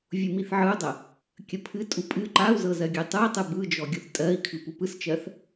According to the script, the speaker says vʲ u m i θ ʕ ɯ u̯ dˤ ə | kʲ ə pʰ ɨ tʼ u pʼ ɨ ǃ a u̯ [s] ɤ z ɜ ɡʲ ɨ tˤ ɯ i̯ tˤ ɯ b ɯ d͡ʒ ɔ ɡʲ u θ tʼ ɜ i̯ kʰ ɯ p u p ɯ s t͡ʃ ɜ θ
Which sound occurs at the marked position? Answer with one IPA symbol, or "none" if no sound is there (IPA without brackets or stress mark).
z